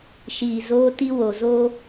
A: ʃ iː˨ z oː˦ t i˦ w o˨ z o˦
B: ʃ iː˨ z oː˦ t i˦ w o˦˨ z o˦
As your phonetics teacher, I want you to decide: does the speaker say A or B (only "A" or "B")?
A